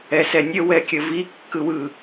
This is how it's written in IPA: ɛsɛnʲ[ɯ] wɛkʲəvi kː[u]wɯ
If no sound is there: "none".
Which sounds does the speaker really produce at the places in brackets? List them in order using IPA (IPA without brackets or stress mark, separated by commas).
ə, ɯ